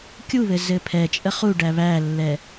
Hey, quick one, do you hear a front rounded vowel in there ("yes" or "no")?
no